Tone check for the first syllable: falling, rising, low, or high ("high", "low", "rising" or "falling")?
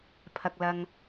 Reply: low